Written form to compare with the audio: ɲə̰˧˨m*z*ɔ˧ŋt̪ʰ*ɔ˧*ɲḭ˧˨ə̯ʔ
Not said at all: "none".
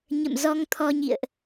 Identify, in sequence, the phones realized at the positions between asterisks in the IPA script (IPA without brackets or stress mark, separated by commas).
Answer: z, ɔ˧